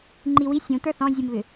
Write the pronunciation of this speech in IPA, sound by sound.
ŋ͡ǃiwi sʲũ tə˞θɔ̃zʲumβʏ

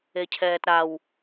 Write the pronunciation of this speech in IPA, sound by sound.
ecʰɛːtɾaw

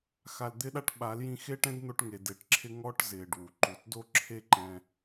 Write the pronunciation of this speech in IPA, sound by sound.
xa˨ld̪ɪ˧ɗa˧ʈ ɓa˨˦ljĩ˧xe˦ ʈɛ̃˦dn̪o˧ʈŋe˨ de˨ʈǁʰɪ˧ ŋɔ˧ʈ zɪː˨ɖ wu˨ ǃu˨tdo˦ ǁʰe˦ǃɛ̃˧

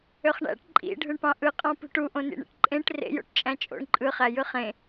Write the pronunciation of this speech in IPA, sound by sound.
øχɳæ̰ʈ ǃʼḭ ɖʱɯɳpɑ̃ʔɯqʼɑ̃ pṳʈuʔõnḭ ɳḭʈǃʼẽʈ rḛjo̰ʈ t͡ʃʼæ̃t͡ʃʼo̰ɳ ǃʼɯχæ jɯχẽ

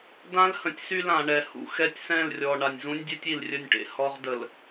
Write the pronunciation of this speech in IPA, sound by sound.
dã˦l hə̃˨tʲ sy˦lã˨ɳɛ˨ hṵ˨xɛ˦tʲsɛ̃˦˨lrʲɔ˨ ɳa˨nʲzũ˦nʲdʲɛ˦tʲ i˨lrʲə˦˨nʲʈḛ˨˦ hɔ˦ʁ də˨l

